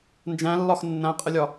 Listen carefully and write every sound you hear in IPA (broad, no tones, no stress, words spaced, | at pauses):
nd͡ʒæ̃lːɒx nːæ̃qʼəlʲɒ